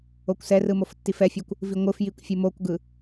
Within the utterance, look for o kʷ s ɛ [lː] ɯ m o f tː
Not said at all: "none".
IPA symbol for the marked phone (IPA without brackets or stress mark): r